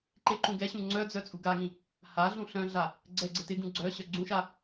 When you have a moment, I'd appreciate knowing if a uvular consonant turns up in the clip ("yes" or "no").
no